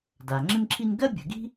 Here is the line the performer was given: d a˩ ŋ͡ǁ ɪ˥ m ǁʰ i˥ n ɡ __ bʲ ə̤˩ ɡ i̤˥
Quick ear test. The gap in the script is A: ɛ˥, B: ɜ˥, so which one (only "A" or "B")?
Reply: B